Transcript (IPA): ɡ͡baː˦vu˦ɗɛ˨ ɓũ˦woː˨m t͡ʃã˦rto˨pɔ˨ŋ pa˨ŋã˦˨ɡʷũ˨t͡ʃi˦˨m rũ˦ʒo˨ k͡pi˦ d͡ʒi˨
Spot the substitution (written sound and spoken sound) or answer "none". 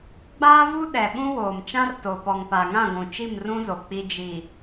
ʒ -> z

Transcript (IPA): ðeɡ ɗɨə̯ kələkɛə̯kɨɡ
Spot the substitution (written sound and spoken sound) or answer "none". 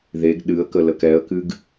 none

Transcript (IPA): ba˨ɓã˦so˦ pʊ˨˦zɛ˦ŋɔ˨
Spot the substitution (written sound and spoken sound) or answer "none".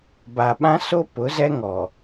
none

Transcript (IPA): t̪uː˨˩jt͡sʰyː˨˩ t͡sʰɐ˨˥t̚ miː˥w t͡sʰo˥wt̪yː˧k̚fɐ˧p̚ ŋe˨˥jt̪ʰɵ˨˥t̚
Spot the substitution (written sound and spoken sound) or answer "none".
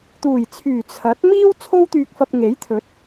none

